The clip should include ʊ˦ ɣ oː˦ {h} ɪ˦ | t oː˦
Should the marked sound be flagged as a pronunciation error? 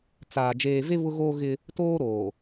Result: yes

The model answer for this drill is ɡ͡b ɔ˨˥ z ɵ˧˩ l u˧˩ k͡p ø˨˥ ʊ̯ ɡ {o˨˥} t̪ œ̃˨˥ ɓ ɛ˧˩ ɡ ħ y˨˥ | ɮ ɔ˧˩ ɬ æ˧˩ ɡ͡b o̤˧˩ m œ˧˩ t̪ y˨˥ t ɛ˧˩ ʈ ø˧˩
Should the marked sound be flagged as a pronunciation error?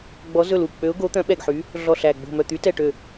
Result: no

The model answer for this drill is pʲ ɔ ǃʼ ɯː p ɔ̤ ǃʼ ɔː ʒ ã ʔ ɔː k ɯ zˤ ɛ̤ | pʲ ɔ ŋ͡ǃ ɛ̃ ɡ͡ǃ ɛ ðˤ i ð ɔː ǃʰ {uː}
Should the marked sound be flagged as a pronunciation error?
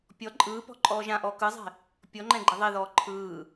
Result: yes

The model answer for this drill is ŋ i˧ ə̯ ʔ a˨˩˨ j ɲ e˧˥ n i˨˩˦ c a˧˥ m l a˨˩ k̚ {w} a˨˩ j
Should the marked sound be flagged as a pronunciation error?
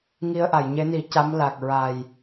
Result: yes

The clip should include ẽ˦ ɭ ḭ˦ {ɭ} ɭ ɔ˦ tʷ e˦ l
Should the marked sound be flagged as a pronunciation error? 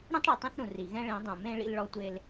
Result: yes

